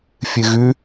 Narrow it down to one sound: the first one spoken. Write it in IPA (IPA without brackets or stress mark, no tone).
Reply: fʲ